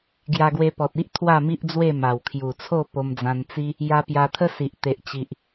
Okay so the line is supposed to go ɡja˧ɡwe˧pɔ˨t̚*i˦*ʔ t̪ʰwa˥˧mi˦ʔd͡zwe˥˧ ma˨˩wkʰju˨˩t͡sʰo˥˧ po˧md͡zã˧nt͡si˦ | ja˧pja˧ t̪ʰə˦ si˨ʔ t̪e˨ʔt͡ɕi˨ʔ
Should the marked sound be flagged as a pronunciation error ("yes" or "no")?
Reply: no